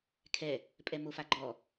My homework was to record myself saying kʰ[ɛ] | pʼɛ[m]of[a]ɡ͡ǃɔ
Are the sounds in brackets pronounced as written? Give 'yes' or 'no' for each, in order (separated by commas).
yes, yes, yes